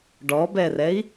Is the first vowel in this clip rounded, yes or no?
yes